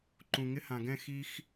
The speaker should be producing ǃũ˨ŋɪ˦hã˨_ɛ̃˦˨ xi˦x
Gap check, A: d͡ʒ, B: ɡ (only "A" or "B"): B